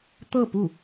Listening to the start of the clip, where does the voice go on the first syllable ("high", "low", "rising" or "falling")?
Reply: falling